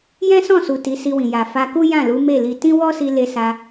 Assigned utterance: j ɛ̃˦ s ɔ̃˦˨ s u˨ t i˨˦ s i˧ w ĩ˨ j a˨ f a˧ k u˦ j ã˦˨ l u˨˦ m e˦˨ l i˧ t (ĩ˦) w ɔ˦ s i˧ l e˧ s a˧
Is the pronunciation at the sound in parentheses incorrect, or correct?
correct